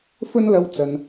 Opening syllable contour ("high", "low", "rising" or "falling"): high